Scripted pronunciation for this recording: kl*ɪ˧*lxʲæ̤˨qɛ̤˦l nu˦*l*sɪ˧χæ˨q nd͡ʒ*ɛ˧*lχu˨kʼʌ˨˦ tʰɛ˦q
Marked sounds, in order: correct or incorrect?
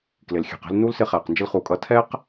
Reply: incorrect: ɪ˨, correct, incorrect: ɪ˧

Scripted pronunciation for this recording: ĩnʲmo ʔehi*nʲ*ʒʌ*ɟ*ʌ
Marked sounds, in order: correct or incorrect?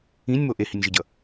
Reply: correct, correct

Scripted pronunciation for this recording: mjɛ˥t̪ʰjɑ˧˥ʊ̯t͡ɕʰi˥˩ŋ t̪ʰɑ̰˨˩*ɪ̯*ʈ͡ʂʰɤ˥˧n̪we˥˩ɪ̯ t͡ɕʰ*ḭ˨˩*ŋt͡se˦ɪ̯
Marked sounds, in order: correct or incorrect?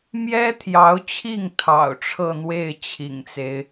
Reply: incorrect: ʊ̯, correct

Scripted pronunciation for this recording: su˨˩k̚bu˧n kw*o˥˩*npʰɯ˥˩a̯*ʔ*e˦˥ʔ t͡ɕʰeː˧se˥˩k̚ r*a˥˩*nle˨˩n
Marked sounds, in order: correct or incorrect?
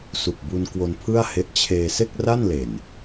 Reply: incorrect: o˧, incorrect: h, correct

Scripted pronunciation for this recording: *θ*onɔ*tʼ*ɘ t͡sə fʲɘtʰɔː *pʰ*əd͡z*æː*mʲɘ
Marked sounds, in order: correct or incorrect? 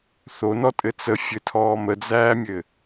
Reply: correct, correct, incorrect: m, correct

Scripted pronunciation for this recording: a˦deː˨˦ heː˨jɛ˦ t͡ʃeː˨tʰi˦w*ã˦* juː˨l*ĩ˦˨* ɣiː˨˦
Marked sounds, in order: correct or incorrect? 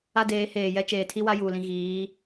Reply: incorrect: a˦, incorrect: ĩ˨

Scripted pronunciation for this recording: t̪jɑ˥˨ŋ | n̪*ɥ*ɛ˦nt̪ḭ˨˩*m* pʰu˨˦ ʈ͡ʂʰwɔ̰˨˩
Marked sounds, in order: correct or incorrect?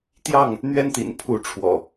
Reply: correct, incorrect: n

